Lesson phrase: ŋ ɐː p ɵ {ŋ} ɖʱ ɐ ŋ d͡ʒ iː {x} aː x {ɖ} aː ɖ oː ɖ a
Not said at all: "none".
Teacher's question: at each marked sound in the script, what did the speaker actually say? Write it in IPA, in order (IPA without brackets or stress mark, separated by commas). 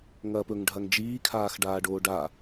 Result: ŋ, kʰ, ɖ